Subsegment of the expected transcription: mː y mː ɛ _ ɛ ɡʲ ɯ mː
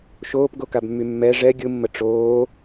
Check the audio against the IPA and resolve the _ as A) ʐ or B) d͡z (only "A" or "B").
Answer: A